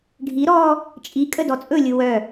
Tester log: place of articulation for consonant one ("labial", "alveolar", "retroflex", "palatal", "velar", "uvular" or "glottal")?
retroflex